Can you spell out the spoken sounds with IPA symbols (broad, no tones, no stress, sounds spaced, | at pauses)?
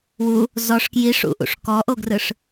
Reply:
w u | z ɔ ʂ k j i ʂ ṵ ʔ ṵ ʂ k ɔ ʔ o ɡ r ɯ ʂ